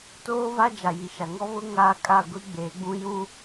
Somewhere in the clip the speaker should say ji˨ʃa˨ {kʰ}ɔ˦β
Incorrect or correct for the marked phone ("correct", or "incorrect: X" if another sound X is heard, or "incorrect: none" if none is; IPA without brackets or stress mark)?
incorrect: ŋ